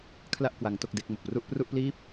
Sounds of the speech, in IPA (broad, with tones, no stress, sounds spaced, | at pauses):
kʰ l a˥˩ ʔ k w a˦˥ ŋ t o˥˩ k̚ d e˥˩ k̚ m o˨˩ k̚ p r u˥˩ ʔ p r u˥˩ ʔ p l iː˥˩ p̚